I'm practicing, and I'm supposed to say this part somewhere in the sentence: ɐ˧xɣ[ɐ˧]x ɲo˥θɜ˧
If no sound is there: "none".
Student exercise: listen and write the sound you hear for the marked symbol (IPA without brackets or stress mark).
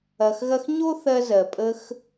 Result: ɐ˥